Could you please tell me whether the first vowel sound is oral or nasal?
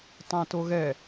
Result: nasal